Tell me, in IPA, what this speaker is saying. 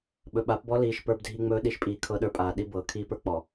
ɓ ɵ˨ ɓ a˨˦ p b ɔ˦ l iː˨ ʃ p ə˞˦ b dʱ i˦ ŋ͡m ɵː˦ ɗ i˨ ʃ pʼ iː˨ kʰ ɤ˦ ɗ ə˞˦ pʼ aː˨ ɗ i˦ b ɤː˨ kʰ iː˦ p ə˞˦ k͡p ɔ˨

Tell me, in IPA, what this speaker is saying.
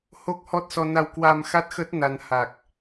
h o˦˥ k̚ h ɔ˦˥ t̚ s ɔ˧ n a˧ w k w a˧ m x a˦˥ t̚ x ə˦˥ t̚ n a˧ n h a˨˩ k̚

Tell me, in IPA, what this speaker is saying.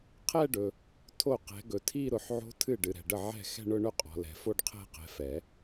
qʰ ɛ˥˧ ɖ ɵ˨ | tʰ o˥˩ q ɛ̤˨˦ ɡ ɵ˨ tʰ i˥˧ ɾ ʊ˨˦ ħ ʕ o̤˦˥ tʰ ɨ˥˩ ɖ ɨ˨ ɾ ɛ̤˨ ɖ ə˥˩ ʕ ɛ̤˥˩ x ɛ̤˥˧ ɳ ʊ˥˧ ɳ ɵ˥˧ qʼ ɔ̤˨ l ɛ̤˨˩˦ f o˥˧ ɖ qʰ ɛ̤˥˧ q ɛ̤˨˦ f ɛ˨˩˦

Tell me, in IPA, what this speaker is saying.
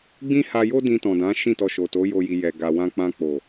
ɡ͡b ĩ˦ h a˧ j o˦ d ĩ˧ t ɔ̃˨ d ã˨˦ ʃ ĩ˦˨ t ɔ˧ ʃ o˨ t o˨˦ j o˦ j i˧ j ɛ˨ ɡ a˨ w ã˧ k͡p ã˧ k͡p o˨

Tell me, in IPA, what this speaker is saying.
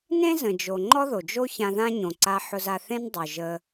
n ẽ˥ z ə̃˩ d͡ʒ o˩ ŋ͡ǃ ɔ˥ ð o˩ d͡ʒ o˥ ç ã˧ ð ã˥ ɲ õ˩ ǀ a˧ ħ ʊ˧ z a˧ θ ẽ˥ n dˤ o˩ ʒ ə˧

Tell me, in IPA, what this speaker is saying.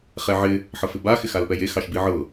χ ɛ ʕ ɪ | ħ ɤ f ɪ b a x ɪ x a l p ɛ j e x ɑ ʃ b i ʕ ɤ

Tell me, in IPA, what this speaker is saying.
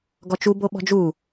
ɡ ɔ t͡ʃ u b o ɓ ɔ̤ d͡ʒ u

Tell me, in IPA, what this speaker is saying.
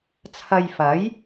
t͡sʰ ɐ˧ j f ɐ˨˥ j

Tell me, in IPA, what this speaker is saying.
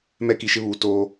m ɛ˦˨ k i˨ ʃ ɪ˦ β uː˨ t oː˦

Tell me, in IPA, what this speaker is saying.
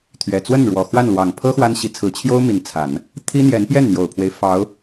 t̪ʰ ɥ ɛ˨˩ t͡s w ə˥˩ n ɻ w ɔ˨˩ x w a˥˩ n l w ɑ˨˩ ŋ pʰ ɤ˥ x w a˥ n ɕ i˧˥ t͡sʰ ɹ̩˧˥ t͡ɕʰ j o˥ ʊ̯ m i˧˥ n t͡sʰ a˨˩˦ n | t̪ʰ i˥ n̪ j ɛ˧˥ n p j ɛ˥˩ n n̪ j o˨˩ ʊ̯ pʰ w e˦ ɪ̯ f ɑ˧˥ ʊ̯

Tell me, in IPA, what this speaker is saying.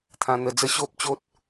t̪ʰ ã˧ n̪ ə˧ d͡z ə˥˧ ɕ o˦ p̚ t͡ɕ o˦ t̚

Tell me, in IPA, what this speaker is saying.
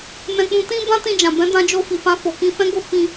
n ɛ̃˧ k͡p ũ˧ t ĩ˦ b ã˦ t ĩ˧ d͡ʒ ã˨ b ɛ̃˨˦ d ã˧ d͡ʒ o˧ f i˨ f ã˧ f o˨ k ĩ˧ f ɛ̃˦ ɡ o˦˨ f ĩ˧

